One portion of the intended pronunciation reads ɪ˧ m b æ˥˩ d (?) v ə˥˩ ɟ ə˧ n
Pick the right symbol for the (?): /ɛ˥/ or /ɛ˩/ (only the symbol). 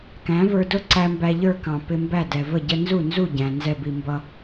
ɛ˩